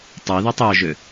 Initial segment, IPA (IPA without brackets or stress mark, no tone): tˤ